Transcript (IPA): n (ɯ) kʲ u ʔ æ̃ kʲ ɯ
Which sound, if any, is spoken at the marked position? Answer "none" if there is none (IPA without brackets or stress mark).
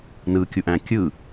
ɯ